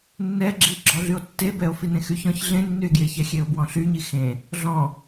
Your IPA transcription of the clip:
nː ɛ ɡ͡ǁ i ɡ͡ǁ ɔ ɮ y o̯ tː e b ɛ o̯ f i n ẽ x y ç ɔ̃ ç ɮ ẽ nː y e̯ ɡ j e ç ɛ xʲ e o̯ b w ɔ̃ ɬ y ɲ i x ẽ | ɮ ɔ̃

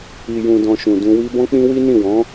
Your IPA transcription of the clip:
i˨ j ũ˨ d ɔ̃˨ ʃ ũ˨ d ũ˧ w i˦ b ɔ̃˦ k͡p ĩ˦ w i˦ n ĩ˦˨ w ɔ̃˨˦

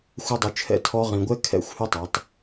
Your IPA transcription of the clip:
xʷ œ˧ dˤ u˨ t͡ʃʰ ɛ̰˧ tʰ ɔ˧ ʁ ĩ˨ ɡʷ ɛ˦ kʰ ɛ̰˦˨ xʷ h ʉ˦ tˤ œ˨˦ tˤ

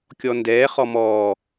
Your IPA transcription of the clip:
kʲ ɔ n d ɛː χ ɔ m ɔː

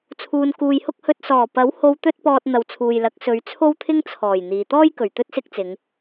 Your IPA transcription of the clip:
t͡sʰ uː˨ n k uː˨ j h ʊ˥ k̚ h ɵ˧ t̚ s ɔː˨˩ p ɐ˨˥ w h o˧ w t̪ ɵ˥ t̚ p ɔː˧ t̚ n̪ ɐ˨ w t͡sʰ uː˨ j l ɐ˨˥ k̚ s ɵ˨˧ ɥ t͡sʰ o˥ w t̪ʰ ɪ˥ ŋ t͡sʰ ɔː˨˩ j n̪ iː˨ t̪ ɔː˥ j k ɵ˨˩ ɥ t̪ ɵ˥ t̚ s ɪ˥ k̚ t͡s ɪ˨˧ ŋ

